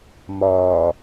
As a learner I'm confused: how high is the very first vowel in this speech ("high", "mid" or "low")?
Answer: low